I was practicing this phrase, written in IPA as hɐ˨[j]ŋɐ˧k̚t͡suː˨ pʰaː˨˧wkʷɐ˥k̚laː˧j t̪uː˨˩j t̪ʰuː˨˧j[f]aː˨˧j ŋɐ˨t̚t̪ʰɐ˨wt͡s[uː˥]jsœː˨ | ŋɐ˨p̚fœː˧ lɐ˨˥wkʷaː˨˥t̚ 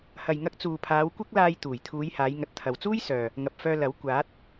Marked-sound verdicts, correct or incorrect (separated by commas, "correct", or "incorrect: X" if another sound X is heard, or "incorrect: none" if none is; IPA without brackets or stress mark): correct, incorrect: h, correct